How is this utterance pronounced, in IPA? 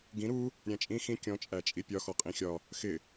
ɡ ĩ ɾ u | ɾʲ æ̃ t͡ʃʼ ĩ x ĩ kʲ ɔ̃ t͡ʃʼ æ t͡ʃʼ i pʲ ɒ x ɔ qʼ ĩ xʲ ɒ | x ɪ

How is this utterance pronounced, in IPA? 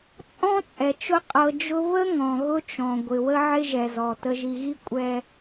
t͡sʼ ɔ̃˦ t͡sʼ ɛ˨ t͡ʃ ʊ˦ qʼ ɤ˨ d͡ʒ ʊ˦ β ə˦ ŋ ɔ̃˨ ɣ ʊ˦ t͡ʃ ɔ̃˨ ɡʷ ɪ˨ w ə˦ ʕ ɪ˦ ʒ ɛ˨ z ɔ˨ t ə˨ ʒ i˨ ɣ i˦ kʷʼ ɛ˦

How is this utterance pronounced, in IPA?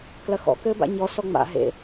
k l ɐ x ɔ̰ k ɘː b a̰ ɲ ɔ s ɔ ŋ͡m a̰ ɦ ḛ

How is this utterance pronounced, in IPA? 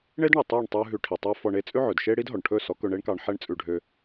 ɳ e˦ d ɳ ɛ˨ tˤ ɑ˦˨ ɳ tˤ ʉ˧ ɦ ʉ˧ ʈʰ i˨ tˤ ɛ˦ f ɔ˧ ɳ e˦ t͡sʼ ʉ˦ ʕ ɵ˨ d ʃ e˦ ɽ i˦ d ɦ ɔ˨ ɳ ʈʰ ɵ˦˨ s ɔ˨˦ k ɵ˧ ɳ e˦ ɳ k ɑ˧ ɳ ħ ɛ˦ ɳ t͡sʼ ʉ˧ ɖʱ ø˧

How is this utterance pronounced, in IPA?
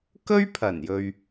k ɵ˥ ɥ pʰ ɐ˨˩ n j ɵ˨ ɥ

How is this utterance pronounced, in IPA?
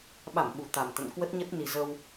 ɓ a˧˩ m ɓ u˨˩ t̪ a˨˩ m t̪ ə̰˧˨ n k w ə˦˥ t̚ ɲ ə˦˥ t̚ n i˨˩ z ə˧ w

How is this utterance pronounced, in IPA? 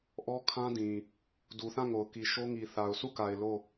ʔ ɔ˦ kʰ ã˦ d ĩ˨ | d u˨ θ ã˦˨ ŋ o˨ ʊ̯ k i˨ ʃ o˦ ŋ i˨ θ a˨ ʊ̯ s u˦˨ k a˨ ɪ̯ l o˦˨

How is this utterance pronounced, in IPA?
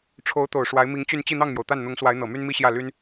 ʈ͡ʂʰ o˧˥ ʊ̯ t̪ o˨˩ ʊ̯ ʂ w a˧˥ ɪ̯ m i˧˥ ŋ t͡ɕ y˥˧ n t͡ɕ i˥˧ n̪ ɑ˥˩ ŋ m j o˩ ʊ̯ t̪ a˥˩ n n̪ ʊ˧˥ ŋ s w a˧˥ ɪ̯ n̪ ɤ˨˩ m y˥ n m i˥ ɕ j ä˥˩ l y˥ n

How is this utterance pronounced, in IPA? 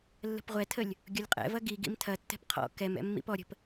lː ə̤ p ʁʷ ɛ tʰ ə lʲ | ɡʲ ʊ lʲ qʼ ɛ̰ v ɐ ɡ i ɡ ḭ m tʰ ɐ tː ɛ̤ p qʰ ɔ̰ k ɛ m ɛ̰ mː ḭ p ɔ ɾʲ ə̤ p

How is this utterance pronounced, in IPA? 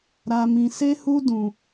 ɾ a˧ m ĩ˧ s e˦ h u˦ d ũ˧

